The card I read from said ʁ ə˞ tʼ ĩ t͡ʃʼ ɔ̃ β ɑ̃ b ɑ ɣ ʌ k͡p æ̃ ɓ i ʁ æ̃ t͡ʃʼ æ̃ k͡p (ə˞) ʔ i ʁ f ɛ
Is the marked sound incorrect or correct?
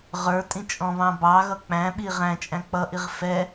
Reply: incorrect